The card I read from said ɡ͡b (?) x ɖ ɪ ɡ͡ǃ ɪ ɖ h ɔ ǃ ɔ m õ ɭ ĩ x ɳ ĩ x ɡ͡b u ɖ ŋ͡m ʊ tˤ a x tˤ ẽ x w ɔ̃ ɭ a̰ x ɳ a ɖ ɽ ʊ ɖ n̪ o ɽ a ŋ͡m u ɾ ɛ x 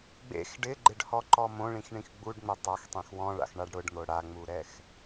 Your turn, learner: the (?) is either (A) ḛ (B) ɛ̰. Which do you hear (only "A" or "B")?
A